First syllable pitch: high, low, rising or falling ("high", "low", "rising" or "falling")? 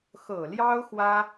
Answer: low